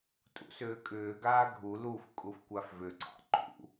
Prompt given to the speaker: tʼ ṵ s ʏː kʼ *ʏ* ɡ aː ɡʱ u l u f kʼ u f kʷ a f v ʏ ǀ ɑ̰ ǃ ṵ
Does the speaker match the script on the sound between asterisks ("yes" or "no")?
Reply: no